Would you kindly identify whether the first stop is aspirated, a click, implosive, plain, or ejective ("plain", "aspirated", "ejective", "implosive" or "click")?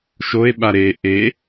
implosive